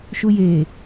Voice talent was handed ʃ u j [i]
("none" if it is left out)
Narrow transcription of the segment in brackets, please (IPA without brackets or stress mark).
e